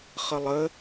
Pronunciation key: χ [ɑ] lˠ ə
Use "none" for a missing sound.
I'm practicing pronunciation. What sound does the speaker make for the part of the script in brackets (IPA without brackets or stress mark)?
ə